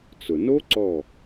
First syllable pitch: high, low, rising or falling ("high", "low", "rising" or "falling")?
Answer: low